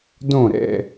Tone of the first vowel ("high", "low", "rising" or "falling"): falling